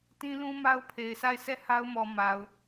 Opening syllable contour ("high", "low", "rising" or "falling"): high